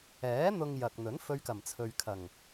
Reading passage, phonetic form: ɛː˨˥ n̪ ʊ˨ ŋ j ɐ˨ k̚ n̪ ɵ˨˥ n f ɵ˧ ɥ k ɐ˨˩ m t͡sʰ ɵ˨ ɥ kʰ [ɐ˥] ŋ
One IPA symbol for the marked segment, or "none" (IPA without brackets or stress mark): ɐ˨˩